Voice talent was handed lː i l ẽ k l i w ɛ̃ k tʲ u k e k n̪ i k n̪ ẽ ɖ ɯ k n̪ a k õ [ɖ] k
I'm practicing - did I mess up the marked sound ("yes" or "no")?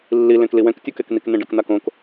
yes